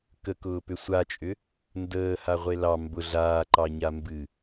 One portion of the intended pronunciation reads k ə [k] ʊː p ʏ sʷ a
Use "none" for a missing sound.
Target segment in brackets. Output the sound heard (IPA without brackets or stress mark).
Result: k